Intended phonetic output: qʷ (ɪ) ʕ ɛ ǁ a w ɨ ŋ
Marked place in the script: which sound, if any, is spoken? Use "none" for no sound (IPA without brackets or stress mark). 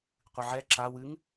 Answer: ɨ